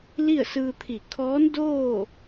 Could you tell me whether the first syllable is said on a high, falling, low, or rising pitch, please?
falling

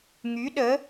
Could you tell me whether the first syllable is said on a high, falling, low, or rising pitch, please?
rising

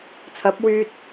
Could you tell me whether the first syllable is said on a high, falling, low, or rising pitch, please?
rising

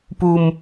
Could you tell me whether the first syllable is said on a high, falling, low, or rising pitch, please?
low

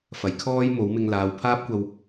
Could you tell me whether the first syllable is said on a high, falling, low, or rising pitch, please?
low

